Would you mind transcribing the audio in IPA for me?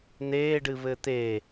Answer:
n̪eːɖɨβɘ t̪e

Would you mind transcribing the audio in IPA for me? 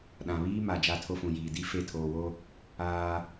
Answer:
ɗã˨βiː˦ma˨ d͡ʒa˦˨tʰo˦fũ˨jiː˨ di˦ fe˦˨tʰoː˨wo˦ | aː˦

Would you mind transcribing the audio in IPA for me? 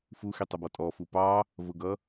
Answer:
fuxitˤʌbɔ tʼɔfu pɑ | vʊɡʌ

